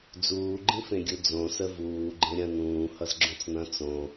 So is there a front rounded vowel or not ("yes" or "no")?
no